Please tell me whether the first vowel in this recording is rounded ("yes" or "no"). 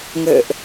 no